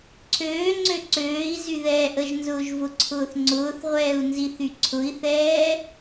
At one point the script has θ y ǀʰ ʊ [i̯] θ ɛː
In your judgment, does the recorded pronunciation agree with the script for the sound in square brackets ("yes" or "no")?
yes